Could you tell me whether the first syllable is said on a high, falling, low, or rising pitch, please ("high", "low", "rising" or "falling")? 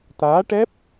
rising